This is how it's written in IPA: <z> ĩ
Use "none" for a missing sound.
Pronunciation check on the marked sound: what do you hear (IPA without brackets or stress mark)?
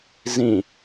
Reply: z